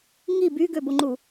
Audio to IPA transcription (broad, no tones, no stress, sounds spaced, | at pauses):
ŋ i b y ɡ ø b o ŋ͡ǃ u